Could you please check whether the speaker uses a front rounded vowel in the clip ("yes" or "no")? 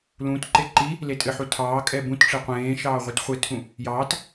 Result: no